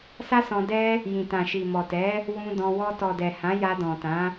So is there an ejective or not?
no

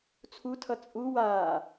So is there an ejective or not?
yes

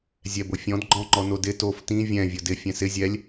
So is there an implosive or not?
no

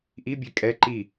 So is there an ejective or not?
yes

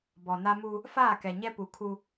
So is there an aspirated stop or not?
yes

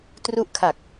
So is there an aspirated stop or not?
yes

